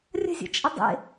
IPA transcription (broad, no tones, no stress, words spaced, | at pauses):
rʲə̤zʲə̰t͡ʃʼə dˤḛ